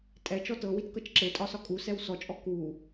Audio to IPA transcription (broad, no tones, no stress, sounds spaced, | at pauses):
tʼ ɛ t͡ʃ ɔ t ɤ w i t k ɤ t͡ʃ ǁ e tʼ ɒ s ɒ kʼ u s ɛ w s ɔ t͡ʃʼ ɔ k u